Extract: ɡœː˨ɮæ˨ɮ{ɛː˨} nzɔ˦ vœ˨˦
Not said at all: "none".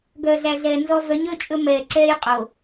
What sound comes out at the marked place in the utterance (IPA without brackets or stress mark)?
ɛː˨